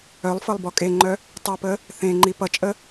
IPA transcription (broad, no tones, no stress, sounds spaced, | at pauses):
œ lˠ f ɤ lˠ b ɔ kʼ e ŋ͡ǃ œ | tˤ ɨ p ə | θ ẽ ŋ͡ǃ i p ʌ t͡ʃʼ ə